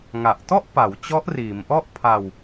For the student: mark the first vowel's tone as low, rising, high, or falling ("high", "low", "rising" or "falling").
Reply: low